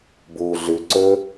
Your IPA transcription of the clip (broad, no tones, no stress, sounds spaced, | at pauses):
b uː ɮ ʉ ǀ ɵː